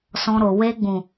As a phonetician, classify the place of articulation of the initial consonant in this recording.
alveolar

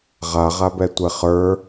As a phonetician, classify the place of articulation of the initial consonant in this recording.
uvular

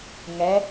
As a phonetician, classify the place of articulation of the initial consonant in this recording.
velar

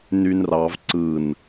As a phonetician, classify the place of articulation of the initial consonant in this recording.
alveolar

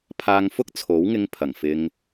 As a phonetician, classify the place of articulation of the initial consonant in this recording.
labial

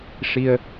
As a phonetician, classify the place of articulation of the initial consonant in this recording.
retroflex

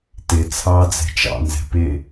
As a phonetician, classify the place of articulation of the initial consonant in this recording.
alveolar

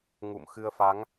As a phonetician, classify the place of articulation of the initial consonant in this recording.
velar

